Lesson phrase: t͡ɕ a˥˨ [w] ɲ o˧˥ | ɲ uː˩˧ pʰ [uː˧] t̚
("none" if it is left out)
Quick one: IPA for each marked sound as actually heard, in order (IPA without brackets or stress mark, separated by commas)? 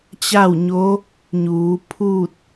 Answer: w, uː˥˨